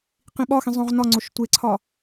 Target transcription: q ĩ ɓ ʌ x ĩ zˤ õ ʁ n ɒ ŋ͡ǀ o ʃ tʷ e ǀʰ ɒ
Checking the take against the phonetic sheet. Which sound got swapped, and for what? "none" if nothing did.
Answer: ʌ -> ɒ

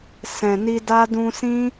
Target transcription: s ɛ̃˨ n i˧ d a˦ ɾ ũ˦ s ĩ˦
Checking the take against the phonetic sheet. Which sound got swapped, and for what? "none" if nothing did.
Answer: ɾ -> d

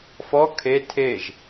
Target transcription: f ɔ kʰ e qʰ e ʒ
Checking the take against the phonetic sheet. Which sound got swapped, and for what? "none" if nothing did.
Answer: qʰ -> tʰ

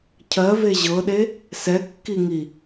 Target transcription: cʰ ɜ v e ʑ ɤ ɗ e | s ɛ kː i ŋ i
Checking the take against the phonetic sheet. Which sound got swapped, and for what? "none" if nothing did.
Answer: none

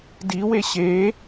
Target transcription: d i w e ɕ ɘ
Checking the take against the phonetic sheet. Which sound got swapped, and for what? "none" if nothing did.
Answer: ɘ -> e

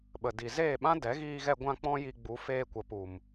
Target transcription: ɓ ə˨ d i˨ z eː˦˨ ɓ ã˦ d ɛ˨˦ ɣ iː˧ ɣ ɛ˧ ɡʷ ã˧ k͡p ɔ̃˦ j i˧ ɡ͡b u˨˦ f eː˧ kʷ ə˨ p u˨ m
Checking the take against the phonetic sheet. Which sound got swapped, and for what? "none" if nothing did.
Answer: none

